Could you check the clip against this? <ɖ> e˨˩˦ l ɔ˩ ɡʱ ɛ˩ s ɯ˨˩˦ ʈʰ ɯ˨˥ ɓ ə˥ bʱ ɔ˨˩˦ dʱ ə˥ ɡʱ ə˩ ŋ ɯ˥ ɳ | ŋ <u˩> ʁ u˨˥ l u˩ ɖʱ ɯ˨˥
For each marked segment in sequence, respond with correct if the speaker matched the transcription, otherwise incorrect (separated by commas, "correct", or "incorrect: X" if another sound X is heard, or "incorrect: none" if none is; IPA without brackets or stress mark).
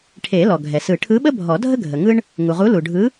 incorrect: ʈʰ, correct